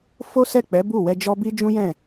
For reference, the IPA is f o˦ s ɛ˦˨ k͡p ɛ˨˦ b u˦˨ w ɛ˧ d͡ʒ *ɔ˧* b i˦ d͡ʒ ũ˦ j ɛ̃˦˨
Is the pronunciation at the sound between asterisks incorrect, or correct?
incorrect: ɔ˦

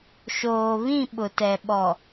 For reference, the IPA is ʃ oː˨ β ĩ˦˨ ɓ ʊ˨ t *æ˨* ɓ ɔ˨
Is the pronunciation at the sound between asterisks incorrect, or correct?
incorrect: ɛ˨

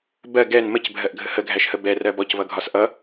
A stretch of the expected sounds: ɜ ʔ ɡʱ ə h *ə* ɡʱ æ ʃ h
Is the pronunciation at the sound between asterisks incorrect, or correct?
correct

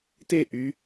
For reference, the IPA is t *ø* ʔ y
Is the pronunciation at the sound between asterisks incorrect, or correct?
incorrect: e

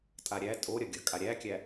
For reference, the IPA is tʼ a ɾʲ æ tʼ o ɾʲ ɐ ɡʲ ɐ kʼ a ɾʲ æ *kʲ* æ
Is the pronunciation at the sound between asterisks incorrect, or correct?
correct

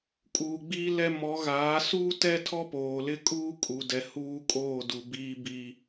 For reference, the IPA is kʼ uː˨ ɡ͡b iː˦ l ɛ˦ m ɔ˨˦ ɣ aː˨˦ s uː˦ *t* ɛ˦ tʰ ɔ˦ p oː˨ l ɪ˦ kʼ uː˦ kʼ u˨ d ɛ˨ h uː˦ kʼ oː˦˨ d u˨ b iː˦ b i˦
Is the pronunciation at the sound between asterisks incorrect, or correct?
correct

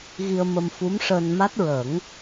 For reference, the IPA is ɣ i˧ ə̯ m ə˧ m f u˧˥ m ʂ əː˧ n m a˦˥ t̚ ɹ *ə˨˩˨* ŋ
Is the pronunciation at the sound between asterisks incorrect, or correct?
incorrect: ə˨˩˦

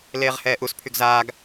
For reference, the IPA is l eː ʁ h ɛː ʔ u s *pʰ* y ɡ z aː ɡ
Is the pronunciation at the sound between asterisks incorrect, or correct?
correct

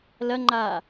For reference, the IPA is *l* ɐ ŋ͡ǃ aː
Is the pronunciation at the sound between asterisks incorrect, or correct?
correct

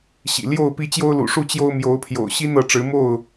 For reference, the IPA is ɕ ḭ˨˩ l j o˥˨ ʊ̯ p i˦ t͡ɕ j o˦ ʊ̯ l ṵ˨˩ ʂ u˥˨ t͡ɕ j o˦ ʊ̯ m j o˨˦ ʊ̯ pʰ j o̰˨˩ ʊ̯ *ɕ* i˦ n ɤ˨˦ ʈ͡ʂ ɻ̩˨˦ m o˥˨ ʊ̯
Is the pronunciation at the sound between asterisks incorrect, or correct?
correct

